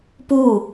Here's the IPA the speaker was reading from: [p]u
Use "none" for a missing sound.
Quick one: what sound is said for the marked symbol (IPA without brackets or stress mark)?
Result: p